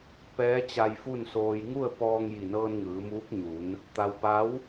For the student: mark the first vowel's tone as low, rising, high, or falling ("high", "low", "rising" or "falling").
rising